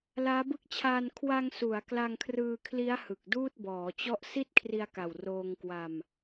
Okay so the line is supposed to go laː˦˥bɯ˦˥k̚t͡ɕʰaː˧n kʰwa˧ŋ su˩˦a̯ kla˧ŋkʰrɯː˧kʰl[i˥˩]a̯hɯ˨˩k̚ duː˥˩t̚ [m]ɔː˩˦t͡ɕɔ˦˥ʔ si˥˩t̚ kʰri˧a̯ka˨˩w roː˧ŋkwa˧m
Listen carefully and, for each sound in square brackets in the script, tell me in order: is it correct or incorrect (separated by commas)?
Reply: incorrect, incorrect